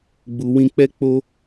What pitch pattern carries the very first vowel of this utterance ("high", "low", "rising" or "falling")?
low